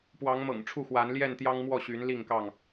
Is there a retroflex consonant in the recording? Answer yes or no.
yes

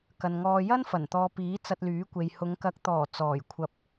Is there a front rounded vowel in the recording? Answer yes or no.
yes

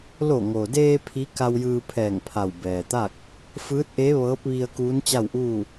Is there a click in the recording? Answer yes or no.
no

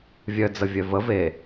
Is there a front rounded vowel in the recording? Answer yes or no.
yes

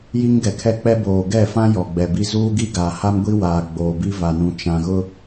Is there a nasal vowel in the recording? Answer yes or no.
yes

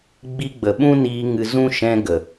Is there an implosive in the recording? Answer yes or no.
yes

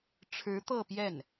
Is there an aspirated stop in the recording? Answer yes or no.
yes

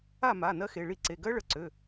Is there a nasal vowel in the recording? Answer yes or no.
no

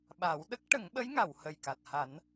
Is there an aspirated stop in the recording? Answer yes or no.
no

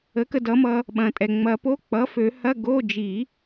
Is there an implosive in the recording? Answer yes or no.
yes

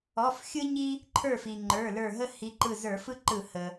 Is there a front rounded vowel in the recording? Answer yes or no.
no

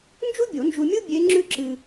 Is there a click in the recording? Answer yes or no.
yes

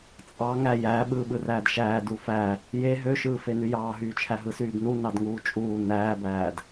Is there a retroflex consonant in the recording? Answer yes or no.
no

